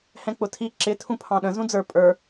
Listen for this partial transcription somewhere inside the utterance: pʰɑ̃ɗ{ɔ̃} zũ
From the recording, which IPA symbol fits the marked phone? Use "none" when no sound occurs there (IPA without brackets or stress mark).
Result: ə̃